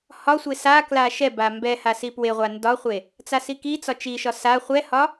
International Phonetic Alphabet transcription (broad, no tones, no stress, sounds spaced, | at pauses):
h ɒ sʷ e s a k l a ʃ ɛ b a m b ɛ h a s i p w e ʁʷ a n d ɒ χʷ e | t͡s a s i k i t͡s ɒ t͡ʃ i ʃ ɒ s a χʷ ɛ h ɒ